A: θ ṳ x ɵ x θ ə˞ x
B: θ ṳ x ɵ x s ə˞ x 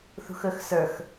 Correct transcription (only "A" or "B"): B